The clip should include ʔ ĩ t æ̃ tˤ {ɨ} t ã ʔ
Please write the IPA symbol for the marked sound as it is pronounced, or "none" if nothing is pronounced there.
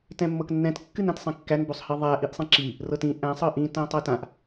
ɛ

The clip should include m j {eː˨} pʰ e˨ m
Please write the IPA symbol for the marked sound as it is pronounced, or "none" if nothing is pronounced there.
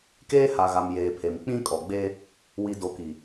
eː˨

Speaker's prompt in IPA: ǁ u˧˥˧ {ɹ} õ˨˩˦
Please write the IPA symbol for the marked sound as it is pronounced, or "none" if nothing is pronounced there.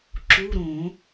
ɾ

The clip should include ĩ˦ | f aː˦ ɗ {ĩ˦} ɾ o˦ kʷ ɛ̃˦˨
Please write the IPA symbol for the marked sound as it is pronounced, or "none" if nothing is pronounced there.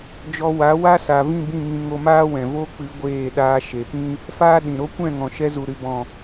ĩ˨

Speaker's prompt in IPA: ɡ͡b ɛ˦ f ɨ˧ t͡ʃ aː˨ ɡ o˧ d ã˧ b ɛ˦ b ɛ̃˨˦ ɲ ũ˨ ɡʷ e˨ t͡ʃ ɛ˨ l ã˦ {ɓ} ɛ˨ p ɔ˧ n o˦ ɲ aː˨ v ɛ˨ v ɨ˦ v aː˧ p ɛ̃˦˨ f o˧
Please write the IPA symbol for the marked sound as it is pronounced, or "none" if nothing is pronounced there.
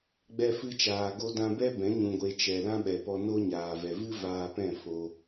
ɓ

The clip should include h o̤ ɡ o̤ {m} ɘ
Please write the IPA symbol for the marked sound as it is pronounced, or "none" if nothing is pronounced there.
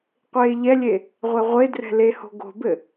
b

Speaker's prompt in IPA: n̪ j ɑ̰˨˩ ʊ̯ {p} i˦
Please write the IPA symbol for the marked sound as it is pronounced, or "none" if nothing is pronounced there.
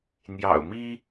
m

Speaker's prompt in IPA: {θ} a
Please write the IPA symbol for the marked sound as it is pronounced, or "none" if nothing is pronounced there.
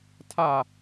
tʰ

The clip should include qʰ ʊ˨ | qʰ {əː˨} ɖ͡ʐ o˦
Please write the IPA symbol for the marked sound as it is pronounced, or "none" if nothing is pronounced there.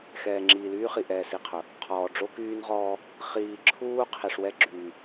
ɔː˨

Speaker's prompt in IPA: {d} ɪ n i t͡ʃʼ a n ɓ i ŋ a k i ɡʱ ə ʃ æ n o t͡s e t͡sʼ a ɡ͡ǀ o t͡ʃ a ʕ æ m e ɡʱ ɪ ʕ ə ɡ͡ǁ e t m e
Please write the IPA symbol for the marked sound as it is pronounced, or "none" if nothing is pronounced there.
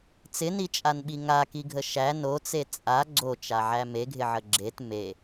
t͡s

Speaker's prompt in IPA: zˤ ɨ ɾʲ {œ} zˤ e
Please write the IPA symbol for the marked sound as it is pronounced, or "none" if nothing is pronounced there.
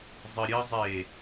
ə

